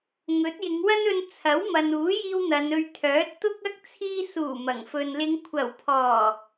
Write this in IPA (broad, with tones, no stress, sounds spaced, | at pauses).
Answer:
ŋ ɵ˨˥ t̚ j ɪ˨˧ ŋ w ɐ˥ n ɵ˧ n t͡sʰ ɐ˨˥ w m ɐ˨ n uː˨˥ j iː˧ w n̪ ɐ˨˧ n ɵ˧ ɥ t̪ʰ œː˨˥ t̚ t̪ ʊ˥ k̚ ɐ˥ k̚ t͡sʰ iː˧ s uː˨˩ m ɐ˨˩ ŋ f ɵ˧ n l ɪ˨˧ ŋ kʷʰ ɐ˨˩ w pʰ ɔː˨˩